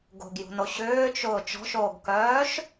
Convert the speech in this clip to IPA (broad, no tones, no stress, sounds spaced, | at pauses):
ɡ o̤ ɡ j ṳ n o ɕ ʏː t͡ʃ ʊː t͡ʃ ɔ̤ ʃ oː ɡ k œː ʃ